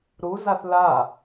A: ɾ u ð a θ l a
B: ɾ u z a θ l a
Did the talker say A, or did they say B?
B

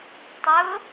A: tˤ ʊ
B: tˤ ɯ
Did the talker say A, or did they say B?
A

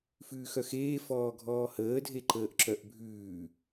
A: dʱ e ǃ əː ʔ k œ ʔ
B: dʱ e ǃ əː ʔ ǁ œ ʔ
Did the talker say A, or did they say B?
B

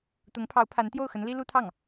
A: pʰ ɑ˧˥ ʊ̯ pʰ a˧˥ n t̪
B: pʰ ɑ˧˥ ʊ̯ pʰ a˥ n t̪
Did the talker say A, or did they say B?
A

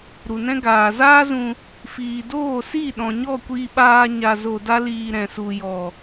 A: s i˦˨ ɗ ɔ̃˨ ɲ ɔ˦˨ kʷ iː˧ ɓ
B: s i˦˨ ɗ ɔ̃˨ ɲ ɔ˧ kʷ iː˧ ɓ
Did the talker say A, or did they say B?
A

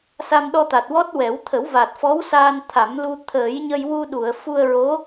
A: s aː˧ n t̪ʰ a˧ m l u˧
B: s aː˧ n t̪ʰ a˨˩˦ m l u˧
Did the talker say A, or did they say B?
B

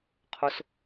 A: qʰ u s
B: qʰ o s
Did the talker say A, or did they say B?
B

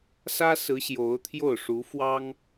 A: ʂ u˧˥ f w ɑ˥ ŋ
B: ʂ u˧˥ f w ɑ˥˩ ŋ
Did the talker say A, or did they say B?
A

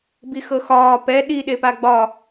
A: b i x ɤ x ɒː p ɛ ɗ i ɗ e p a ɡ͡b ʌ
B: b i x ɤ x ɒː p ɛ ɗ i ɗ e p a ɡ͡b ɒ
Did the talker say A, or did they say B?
B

